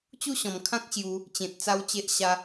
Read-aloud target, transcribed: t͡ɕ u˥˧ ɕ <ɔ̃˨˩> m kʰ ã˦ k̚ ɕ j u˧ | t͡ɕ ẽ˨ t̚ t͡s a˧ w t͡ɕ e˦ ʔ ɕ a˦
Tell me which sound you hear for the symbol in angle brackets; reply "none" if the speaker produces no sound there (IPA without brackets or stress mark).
ɔ̃˨˩